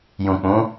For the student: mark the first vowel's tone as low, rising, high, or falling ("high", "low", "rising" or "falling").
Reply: low